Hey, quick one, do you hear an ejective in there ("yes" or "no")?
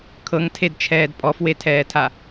yes